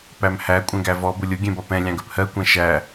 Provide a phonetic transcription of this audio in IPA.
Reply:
p æ m h æ kʷʼ ɛ̃ ɡ æ v ɔ b ʊ lʲ ʊ ɡʲ ɛ̃ b ɒ p ɛ̃ lʲ ɑ̃ ɡ ɜ p h ɜ kʷ ɛ̃ ʃ æ

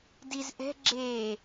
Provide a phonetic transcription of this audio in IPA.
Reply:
d i z ʔ ɛ̤ ɡ͡ǁ eː

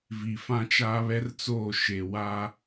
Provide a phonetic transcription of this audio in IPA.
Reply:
v i˨ f ã˦ t͡ʃ aː˦ β ɛ˦ r t͡s oː˦˨ ʃ e˨ w a˦

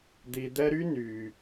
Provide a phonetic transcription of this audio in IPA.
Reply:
d̪ i˨ d̪ ɛ˦ ɾ y˥ n y˩

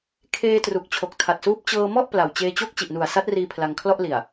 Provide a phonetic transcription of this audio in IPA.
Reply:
kʰ eː˧ t r u˨˩ k̚ t͡ɕʰ o˨˩ k̚ tʰ a˨˩ t̚ s uː˦˥ p̚ t͡ɕ ɤː˧ m ɔ˥˩ ʔ p l a˨˩ w t͡ɕ eː˧ t͡ɕ o˥˩ k̚ t͡ɕ i˨˩ ʔ n u˨˩ a̯ s a˦˥ t̚ r iː˧ pʰ l a˧ ŋ kʰ l ɔ˥˩ ʔ l i˨˩ a̯

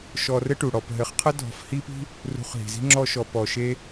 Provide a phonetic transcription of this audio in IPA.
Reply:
ʃ ɔ˧ r ɘ˦ ʈ u˨ ɽ ɔ˨ p ɦ ɘ˨˦ χ qʰ ə˦ dʱ ɔ̤˧ f h i˦ p i̤˦ | r ṳ˧ χ ɦ i̤˨ z i̤˦ ŋ͡ǁ ɔ˦ ʃ ɔ˧ p ɔ˨ ʃ e˦

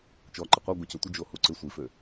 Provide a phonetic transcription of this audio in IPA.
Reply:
t͡ʃ ɔ ǃ ɪ qʷ œ ɡʷ œ c ø tʷ ɪ d͡ʒ o h u ǀ ɪ sʷ i f ø

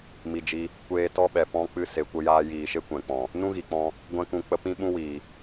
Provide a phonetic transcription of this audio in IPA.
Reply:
m i˨ d͡ʒ i˧ | kʷ eː˧ t ɔ˦ ɓ ɛ˨ p ɔ̃˧ k͡p ɨ˧ s e˨ kʷ ə˧ j aː˧ j iː˨ ʃ e˦ kʷ ɛ̃˨ k͡p ɔ̃˨ | n ũ˦ ɣ i˨ k͡p ɔ̃˧ | ɡʷ ɛ̃˧ k ũ˨ k͡p ə˧ p ĩ˦ ɓ ũ˦ w iː˨

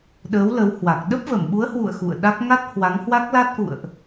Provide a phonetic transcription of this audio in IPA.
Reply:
ɗ əː˨˦ w l ə˨˦ w h w a˨˩ k̚ ɗ ə˦˥ p̚ v ə˧˩ m ɓ u˨˦ ə̯ h w ṵ˧˨ ə̯ x ṵ˧˨ ə̯ ɗ a˦˥ k̚ ŋ a˦˥ t̚ h w a˨˦ ŋ h w a˦˥ k̚ l a˦˥ t̚ ʔ ṵ˧˨ ə̯ ʔ

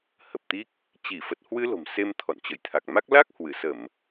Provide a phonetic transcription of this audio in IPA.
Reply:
h ə˨˩ p̚ t̪ i˦˥ k̚ | t͡ɕ i˧˩ f ə˨˩ t̚ h w ɨ˧ l o̤˨˩ m s e˧ m t̪ʰ ɔ̰˧˨ n t͡ɕ ə̰˧˨ j t̪ʰ a˨˩ k̚ m a˦˥ k̚ l a˦˥ k̚ h w ɨ˧˩ s ə˧˩˨ m

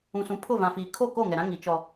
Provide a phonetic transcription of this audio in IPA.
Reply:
ũ˨ s ũ˨ pʰ ʊ˦˨ v ã˨ f iː˨ kʰ o˦˨ k oː˦˨ ŋ ɛ˨ ɾ ã˦ ŋ i˨˦ t͡ʃ ɔ˦

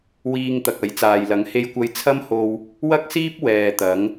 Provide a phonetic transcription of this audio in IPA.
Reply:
w iː˧ ŋ t̪ ɐ˨ k̚ ɐ˨˥ j t͡s aː˨ j l ɐ˨˥ ŋ h e˧ j kʷ ɐ˧ j t͡sʰ ɐ˥ m h o˧ w | w ɐ˥ k̚ s iː˥ p̚ w ɛː˨ t̪ ɐ˨˥ ŋ

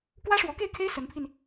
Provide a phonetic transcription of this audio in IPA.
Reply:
k w ä˥ ʂ w ɔ˧˥ k e˥˩ ɪ̯ kʰ e˥ ɪ̯ s ə˧˥ n pʰ i˧ n

